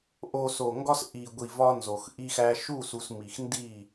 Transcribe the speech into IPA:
ʔo˨ so˨ŋɡɒ˦s ʔi˨ɡʷi˨ vɒ˦nzo˨xʔi˦xæ˦ ʃu˦˨su˨s mi˨xndi˦˨

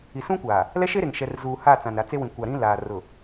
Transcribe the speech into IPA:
i˨sũ˦kʷaː˨ | lɛ˦ʃe˦ ɾe˨ŋʃɛ˨r zuː˨ha˦˨ t͡sã˨nɾa˨t͡se˦wĩ˨ kʷa˨ɾĩ˦laː˨ rʊ˨

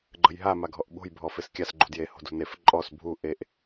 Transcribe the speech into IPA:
ɡ͡ǃə̤jɦa maɡʱɔʔɓo̤j bʱɔfeskʲas ɡ͡ǃṳdje ho̤dṳnef ǃʼɔs bʱu ʔeʔ

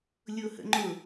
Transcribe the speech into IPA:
lʲʊhə̰ŋ͡ǃʊ

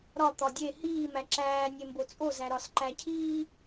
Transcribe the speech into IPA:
ɾɒ t̪ɒdʲe hiː mæǁæː nʲembot͡sʼo zæɾɒs ǃæcʰiː

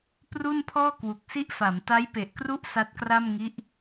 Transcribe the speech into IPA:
pru˥˩npʰɔː˥˩ kwu˨˩k̚si˦˥ʔfa˩˦m ta˦˥jpe˨˩ʔkru˦˥ʔ sa˦˥t̚kra˥˩m ŋi˦˥ʔ

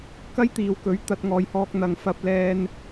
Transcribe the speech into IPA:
kɐ˥jt̪iː˨wkɵ˨˥ɥt̪ɐ˧t̚ ŋɔː˨jhɔː˧k̚n̪ɐ˨˧ŋfɐ˧p̚ lɛː˥n

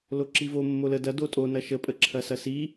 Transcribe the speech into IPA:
loǁivo mːolə dɐ dotʼo nɐʃə pʼəǁʰɐsɐsi

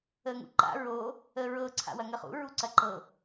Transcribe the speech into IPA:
əŋṵǃa̰ ɹo | əɹɤ ǀʰa̰wɐŋəχṵ ɹuǀɐǃɤ

